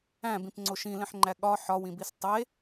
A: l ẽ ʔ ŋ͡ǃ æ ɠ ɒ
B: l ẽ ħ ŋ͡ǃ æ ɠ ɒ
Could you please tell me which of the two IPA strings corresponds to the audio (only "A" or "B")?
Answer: B